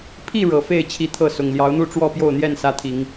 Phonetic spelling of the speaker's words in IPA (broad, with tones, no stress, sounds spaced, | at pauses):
pʰ i˥˨ ɻ ɤ˨˩ f e˥˨ ɪ̯ t͡ɕʰ i˥˨ t̪ʰ ɤ˥˨ s ʊ˨˩ ŋ l j ɑ˨˦ ʊ̯ n̪ u˥˨ ʈ͡ʂ w ɔ˥˨ p j o˥˨ ʊ̯ n̪ j ɛ˥˨ n s ä˦ t̪ʰ i˨˦ ŋ